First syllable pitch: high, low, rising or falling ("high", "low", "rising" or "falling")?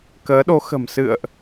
rising